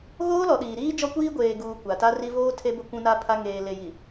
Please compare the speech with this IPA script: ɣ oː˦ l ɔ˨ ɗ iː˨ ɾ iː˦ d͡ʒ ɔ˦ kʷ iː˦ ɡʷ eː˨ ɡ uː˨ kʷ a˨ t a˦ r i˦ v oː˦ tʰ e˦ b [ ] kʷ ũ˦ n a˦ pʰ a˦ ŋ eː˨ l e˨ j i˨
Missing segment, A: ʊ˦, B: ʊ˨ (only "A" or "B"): A